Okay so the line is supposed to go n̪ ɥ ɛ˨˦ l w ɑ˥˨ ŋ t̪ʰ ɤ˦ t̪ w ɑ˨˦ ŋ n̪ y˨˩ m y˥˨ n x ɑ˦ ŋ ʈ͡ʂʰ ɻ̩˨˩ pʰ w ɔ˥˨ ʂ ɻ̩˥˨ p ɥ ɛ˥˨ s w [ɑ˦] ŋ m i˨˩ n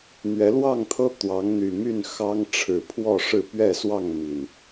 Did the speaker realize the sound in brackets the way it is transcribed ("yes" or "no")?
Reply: no